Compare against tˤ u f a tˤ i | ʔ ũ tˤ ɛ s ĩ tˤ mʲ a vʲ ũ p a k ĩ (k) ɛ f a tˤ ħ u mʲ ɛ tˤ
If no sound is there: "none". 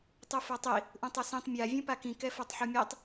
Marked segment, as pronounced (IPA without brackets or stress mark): k